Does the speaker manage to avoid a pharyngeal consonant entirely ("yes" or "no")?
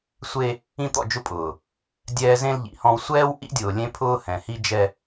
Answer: yes